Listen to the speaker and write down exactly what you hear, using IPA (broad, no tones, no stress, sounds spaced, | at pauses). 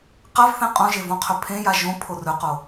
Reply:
q a v θ ẽ qʼ õ ʒ e v õ qʰ ɵ pʰ ẽ j a ʒ õ pʰ o r ɵ q o